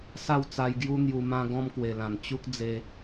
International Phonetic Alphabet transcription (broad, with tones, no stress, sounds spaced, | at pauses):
s a˥˧ w t͡s a˧ j ɡ j u˦ n̪ j u˧ m ã˦ ɡ ɔ̃˦ m k w e˨˩ l ã˨˩ n t͡ɕ u˦ k̚ d͡z e˧